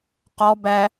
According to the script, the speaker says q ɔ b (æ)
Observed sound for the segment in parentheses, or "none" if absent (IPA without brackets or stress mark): æ